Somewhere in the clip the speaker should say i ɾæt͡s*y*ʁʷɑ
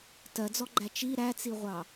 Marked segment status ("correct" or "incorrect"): incorrect